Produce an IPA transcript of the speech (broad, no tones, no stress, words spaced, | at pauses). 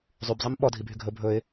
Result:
zˤybzˤim ɓɔdʱibʱy ɡʱɵ bʱɵɪ̯